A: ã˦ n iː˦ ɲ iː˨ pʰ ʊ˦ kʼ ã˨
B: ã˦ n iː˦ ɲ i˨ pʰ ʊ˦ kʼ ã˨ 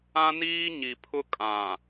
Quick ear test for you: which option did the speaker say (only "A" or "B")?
B